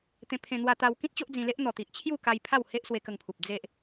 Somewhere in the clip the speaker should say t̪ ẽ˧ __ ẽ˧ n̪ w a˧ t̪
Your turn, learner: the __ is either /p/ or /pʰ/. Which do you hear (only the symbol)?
pʰ